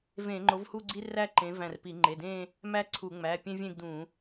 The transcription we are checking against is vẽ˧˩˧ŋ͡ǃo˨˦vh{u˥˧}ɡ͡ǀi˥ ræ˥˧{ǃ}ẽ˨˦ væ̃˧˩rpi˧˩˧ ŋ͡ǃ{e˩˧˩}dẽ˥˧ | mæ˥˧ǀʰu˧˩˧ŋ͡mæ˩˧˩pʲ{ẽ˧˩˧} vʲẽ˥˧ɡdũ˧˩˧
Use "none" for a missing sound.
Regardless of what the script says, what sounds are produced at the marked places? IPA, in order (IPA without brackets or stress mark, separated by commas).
u˥˧, ǃ, e˩˧˩, ẽ˥